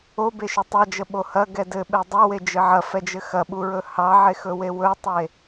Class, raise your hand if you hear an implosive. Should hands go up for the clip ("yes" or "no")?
yes